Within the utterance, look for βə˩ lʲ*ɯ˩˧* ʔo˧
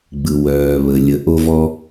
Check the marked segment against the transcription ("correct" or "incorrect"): incorrect